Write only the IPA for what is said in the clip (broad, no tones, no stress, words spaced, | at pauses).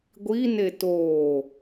ɡʷine toː